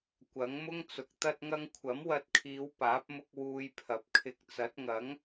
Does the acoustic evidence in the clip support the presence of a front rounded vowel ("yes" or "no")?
no